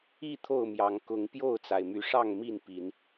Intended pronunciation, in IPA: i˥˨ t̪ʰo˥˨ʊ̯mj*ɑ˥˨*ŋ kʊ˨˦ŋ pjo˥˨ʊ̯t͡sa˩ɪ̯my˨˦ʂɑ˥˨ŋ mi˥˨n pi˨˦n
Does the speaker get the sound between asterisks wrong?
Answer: yes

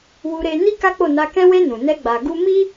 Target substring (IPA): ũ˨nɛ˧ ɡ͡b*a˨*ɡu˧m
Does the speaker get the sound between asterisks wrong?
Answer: no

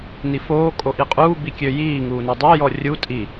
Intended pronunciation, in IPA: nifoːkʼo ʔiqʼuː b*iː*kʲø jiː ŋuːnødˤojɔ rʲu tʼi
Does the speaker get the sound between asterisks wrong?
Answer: yes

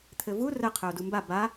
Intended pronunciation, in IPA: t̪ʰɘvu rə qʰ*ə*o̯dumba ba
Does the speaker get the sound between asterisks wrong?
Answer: yes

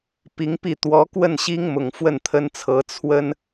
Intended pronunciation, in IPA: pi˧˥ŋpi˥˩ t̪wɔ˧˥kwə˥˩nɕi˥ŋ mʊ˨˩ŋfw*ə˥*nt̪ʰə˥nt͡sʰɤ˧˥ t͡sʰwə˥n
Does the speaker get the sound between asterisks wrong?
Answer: yes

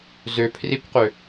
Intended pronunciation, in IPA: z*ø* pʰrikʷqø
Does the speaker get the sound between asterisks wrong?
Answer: no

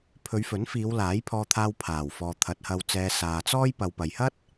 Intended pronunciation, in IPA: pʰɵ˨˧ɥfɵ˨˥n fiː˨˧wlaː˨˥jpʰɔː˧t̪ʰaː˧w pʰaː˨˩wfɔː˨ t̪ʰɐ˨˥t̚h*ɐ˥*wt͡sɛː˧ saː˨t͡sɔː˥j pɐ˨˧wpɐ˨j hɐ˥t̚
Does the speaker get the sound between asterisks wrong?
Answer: yes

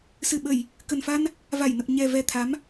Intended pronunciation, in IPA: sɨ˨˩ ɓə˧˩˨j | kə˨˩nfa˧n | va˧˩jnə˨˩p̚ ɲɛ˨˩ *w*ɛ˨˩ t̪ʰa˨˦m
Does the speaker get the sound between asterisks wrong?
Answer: yes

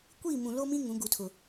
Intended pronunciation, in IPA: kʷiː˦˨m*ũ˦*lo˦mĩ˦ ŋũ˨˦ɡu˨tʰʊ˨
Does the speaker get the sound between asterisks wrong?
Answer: yes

